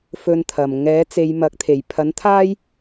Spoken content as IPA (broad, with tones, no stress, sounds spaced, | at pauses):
f ɵ˨ n t̪ʰ ɐ˨˩ m ŋ ɛː˨˥ t͡s e˨˧ j m ɐ˨˥ k̚ t̪ʰ e˨˩ j pʰ ɐ˨˥ n t̪ʰ aː˥ j